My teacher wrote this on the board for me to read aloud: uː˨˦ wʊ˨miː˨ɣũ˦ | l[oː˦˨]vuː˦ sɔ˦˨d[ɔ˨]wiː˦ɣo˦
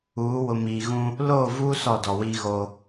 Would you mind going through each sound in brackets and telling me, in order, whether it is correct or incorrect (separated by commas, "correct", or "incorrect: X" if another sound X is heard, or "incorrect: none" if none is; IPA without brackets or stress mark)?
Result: correct, correct